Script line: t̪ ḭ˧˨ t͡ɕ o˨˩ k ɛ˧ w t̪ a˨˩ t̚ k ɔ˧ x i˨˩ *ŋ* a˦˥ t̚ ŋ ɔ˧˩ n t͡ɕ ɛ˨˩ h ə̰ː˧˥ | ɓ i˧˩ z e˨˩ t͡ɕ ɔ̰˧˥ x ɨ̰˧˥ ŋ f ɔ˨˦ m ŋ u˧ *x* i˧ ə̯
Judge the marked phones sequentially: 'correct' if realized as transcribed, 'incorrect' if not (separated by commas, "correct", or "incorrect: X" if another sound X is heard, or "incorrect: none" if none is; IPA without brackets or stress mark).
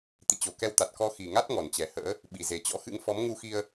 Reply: correct, correct